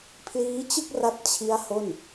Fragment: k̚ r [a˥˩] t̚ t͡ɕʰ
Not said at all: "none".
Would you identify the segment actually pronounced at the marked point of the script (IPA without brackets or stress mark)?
a˦˥